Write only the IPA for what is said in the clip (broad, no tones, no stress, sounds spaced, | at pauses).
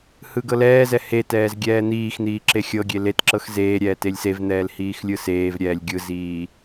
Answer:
h ɯ ɡ ɤ l ɛː z ɛ h e t ɛː z ɡʲ ɛː n̪ iː x n̪ iː ǁ e xʲ ɤ ɡʲ e l e t ǁ ɤ x z eː ɾʲ ɛː t e lʲ s e v n̪ ɛː l h iː x lʲ ɯ s eː v ɾʲ ɛː lʲ ɡʲ ɯ z iː